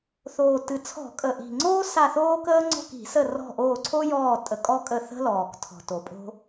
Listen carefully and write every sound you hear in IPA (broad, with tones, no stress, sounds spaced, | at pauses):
θ oː˨˩ t ɨ˨˩ t͡sʰ ɔ̤˧˩˧ kʼ ə˨˩ ʔ i̤˨˩ ŋ͡ǀ oː˥ s a˦˨ θ oː˥ k əː˥ ŋ͡ǀ ɔ̤˦˨ k i̤˧˩˧ s ə˦˨ r ɔ̤˦˨ ʔ oː˦˨ ǀʰ o˥ j ɔː˦˨ tʼ ə˧˩˧ kʼ ɔ˥ kʼ ə˦˨ θ ə̤˥ l ɔː˨˩ k tʰ ɔ̤˨˩ t o˨˩ pʼ o̤˥